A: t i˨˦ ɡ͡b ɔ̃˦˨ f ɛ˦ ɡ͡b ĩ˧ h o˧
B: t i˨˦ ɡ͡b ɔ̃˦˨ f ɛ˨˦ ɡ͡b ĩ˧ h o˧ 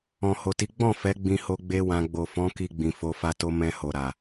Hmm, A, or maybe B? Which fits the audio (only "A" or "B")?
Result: B